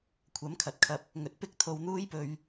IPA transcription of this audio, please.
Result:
kʷʰɐ˨˥mkʰɐ˨t̚kʰɐ˧p̚ | ŋɵ˧t̚ pɪ˥k̚t̪ʰo˧wn̪uː˥jpɵ˧ɥ

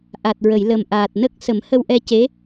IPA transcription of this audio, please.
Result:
ʔa˨˩t̚ɹə˨˩˨j lə˨˩m ʔaː˨˩t̚ nə˦˥k̚ sə˨˩˦mhə˧wʔɛ˧ce˧˥

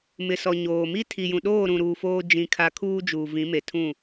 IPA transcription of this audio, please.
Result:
mɪ˨sɔ˨ ɲoː˨mi˦ tʰi˨jũ˨ɗoː˦˨ ɾũ˨ɾuː˨ foː˦ d͡ʒĩ˦˨kʰa˦ kʰuː˦d͡ʒuː˨vĩ˨˦ me˨tʰũ˦˨

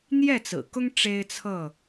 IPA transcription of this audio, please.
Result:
n̪jɛ˥˨t͡sɹ̩˨˩kʊ˦ŋ ʈ͡ʂe˦ɪ̯t͡sʰɤ˥˨

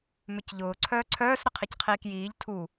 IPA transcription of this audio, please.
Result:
mʏcʎʊː ǀʰœːǀʰœːs ɾəqʰicqʰiːkjiːʎ tʰu

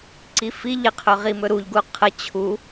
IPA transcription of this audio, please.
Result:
ǀifi ʎɪqʰɵʁi mɵɾuʎ ɡuqʰə t͡ɕʰu

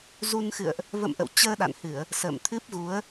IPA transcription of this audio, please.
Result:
zu˧nxɨ̰˧˨ə̯ʔ | və̰˧˨mʔə̰˧˨w t͡ɕəː˧ɗa̰˧˨nhɨ˧˩˨ə̯ | sə̰ː˧˨mt̪ʰɨ˦˥p̚ɣu˨˦ə̯

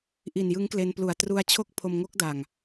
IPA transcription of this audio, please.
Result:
ʔi˨˩njɯ˦˥ŋkle˧nplu˨˩a̯ tru˧a̯t͡ɕʰo˥˩k̚ pʰo˧mŋo˦˥k̚da˨˩ŋ

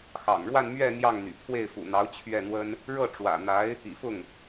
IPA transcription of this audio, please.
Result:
xɑ̰˨˩ŋɻwa˥˧n mɥɛ˥˧ n̪jɑ˥˩ŋn̪y̰˨˩ pʰwe˥˩ɪ̯fṵ˨˩n̪ɑ˧˥ʊ̯ t͡ɕʰɥɛ˥˩n̪wə˥n | ɻɤ˥˩ ʈ͡ʂwä̰˨˩n̪a˧˥ɪ̯ | ḭ˨˩fʊ˥˩ŋ

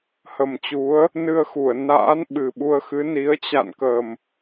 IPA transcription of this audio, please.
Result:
hə˨˩mt͡ɕu˨˦ə̯ | nɨ˧ə̯xu˧˩ə̯ na̰ː˧˥nɓɨ˨˩ɓu˧ə̯xɨ˨˦ ni˨˦ə̯ t͡ɕa̰˧˨nkə˨˩m

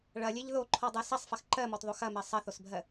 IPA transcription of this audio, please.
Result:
ɭɐlʲeʎ ðoǃʰɔdˤɜ sɐsˤfɐx ǃɜmɔtðˤo xɐmɜ sˤɐθosbʱɜ

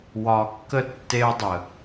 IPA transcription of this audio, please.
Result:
wɒ˨kːə˦ tːe˦ʊ̯dˤə˨

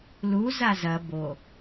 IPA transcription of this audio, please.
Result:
lu zazɐ bo

